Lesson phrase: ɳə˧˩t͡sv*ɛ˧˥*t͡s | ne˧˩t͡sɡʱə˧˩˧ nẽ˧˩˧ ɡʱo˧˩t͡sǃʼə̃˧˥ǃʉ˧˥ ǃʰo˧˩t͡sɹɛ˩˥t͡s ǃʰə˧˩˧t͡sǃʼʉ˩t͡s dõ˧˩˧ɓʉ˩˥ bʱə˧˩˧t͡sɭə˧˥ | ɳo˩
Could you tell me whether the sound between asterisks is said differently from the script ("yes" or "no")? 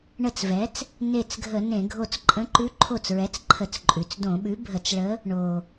yes